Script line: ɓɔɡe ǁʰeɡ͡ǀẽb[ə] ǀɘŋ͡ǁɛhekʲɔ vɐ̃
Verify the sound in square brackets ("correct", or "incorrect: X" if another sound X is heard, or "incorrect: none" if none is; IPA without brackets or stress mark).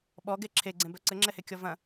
incorrect: œ